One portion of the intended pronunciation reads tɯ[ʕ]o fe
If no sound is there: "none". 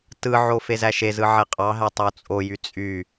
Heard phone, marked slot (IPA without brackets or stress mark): ʕ